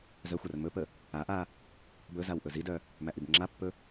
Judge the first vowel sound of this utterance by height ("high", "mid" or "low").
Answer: mid